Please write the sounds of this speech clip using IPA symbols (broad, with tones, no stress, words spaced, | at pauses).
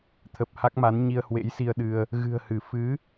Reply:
t̪ʰə˨˩p̚ ha˦˥k̚ma˨˦n ɲi˧ə̯hwḛ˧˥jsi˧ə̯ɗɨ˧ə̯ | ɣɨ̤˨˩ə̯hɨ˧˩ fɨ˨˦